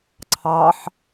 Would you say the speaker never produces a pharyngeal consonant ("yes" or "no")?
no